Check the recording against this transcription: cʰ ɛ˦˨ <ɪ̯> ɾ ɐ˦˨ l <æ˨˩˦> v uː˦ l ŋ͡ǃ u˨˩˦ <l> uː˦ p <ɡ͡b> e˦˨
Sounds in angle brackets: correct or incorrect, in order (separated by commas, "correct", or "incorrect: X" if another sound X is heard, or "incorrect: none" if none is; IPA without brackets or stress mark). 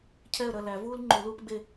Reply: incorrect: ə̯, correct, correct, correct